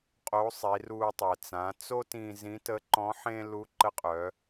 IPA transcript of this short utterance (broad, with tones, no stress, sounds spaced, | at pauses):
qʼ o˧˥ sˤ i˩˧ r u˧ tˤ ɛ˩ t͡s ã˩˧ t͡s o˥ t ĩ˧ z ĩ˧˥ t ə˧˥ ǃ ɔ̃˧˥ ħ ẽ˥ l u˧˥ ǃ ə˧˥ qʼ œ˩˧